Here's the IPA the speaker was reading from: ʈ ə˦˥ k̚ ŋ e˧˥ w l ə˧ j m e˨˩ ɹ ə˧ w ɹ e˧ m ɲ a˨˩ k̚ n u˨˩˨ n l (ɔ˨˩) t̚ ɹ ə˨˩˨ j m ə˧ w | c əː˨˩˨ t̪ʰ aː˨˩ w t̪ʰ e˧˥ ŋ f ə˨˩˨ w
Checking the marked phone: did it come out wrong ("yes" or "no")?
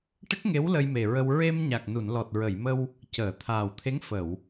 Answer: no